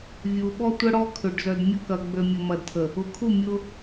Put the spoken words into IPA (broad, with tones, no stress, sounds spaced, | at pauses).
vʲ u˨ ɓ ɔ˦ tʷ ə˦ ɽ ɔ˦ kʰ ʏ˨ ɖ z œ˨ d mʲ ʊ˦ k ɐ˨ ɡ͡b ø˨ mʲ ʊ˨ m ɐ˨ d tʰ ə˨ | ʊ˨ kʰ u˦˨ mʲ ʊ˦